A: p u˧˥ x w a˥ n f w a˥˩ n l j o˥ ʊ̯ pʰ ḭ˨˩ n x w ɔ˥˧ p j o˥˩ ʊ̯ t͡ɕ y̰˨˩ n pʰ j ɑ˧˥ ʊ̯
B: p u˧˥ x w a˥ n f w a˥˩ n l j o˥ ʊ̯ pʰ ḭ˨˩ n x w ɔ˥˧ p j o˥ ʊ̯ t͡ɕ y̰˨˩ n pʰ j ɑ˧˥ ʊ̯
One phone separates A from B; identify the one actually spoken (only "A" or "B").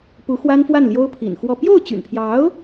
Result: A